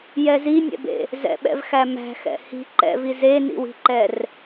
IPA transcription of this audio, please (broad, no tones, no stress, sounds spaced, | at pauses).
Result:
j ɛ z i nʲ ɛ̰ b ḛ | z ɛ̰ ɓ ɛ̰ v x æ m æ̤ x ɛ̰ h i̤ ǃ ɛ̰ v i z e n ḭ w i̤ ǃ ɛ r